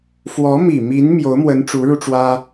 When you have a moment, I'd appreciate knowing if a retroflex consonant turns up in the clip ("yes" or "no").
yes